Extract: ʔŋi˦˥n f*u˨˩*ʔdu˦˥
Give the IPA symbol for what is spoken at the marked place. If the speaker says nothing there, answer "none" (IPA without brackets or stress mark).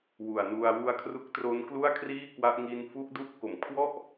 u˦˥